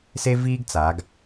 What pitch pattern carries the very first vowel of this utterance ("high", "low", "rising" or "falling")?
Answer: high